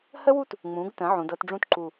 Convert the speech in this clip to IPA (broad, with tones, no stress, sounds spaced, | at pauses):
h ə˥ w u˥˧ t | ŋ͡m ũ˩˧ ɡ t ə̃˩˧ ʕ ũ˩˧ d ɤ˥˧ t ɖ͡ʐ ũ˥ t ǃ u˧˩